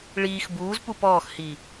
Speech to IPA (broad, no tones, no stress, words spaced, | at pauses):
ɭiːx buːz pupɔːxhi